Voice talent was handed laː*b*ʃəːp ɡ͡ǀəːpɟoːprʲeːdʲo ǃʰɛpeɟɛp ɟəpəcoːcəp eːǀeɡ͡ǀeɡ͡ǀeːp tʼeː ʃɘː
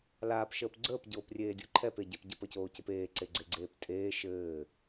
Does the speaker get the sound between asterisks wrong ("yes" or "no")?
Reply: yes